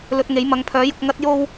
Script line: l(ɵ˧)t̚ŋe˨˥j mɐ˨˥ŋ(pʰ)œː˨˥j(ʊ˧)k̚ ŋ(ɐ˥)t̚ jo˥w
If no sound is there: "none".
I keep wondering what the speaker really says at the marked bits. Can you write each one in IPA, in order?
ɵ˧, pʰ, ʊ˧, ɐ˥

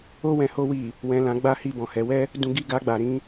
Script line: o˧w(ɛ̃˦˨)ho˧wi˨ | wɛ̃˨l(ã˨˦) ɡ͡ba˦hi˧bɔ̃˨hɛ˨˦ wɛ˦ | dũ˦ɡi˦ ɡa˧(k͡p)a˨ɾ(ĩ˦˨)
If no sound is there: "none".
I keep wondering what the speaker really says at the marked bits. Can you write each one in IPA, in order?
ɛ̃˨, ã˨˦, ɡ͡b, ĩ˧

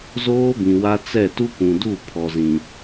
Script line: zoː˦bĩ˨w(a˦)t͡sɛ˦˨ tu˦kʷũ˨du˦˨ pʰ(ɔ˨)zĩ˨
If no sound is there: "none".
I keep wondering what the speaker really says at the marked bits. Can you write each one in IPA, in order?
a˦, ɔ˨

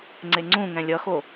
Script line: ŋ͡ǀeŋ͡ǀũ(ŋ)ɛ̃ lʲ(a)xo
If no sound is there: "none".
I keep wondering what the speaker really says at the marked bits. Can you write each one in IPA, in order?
ŋ, ʌ

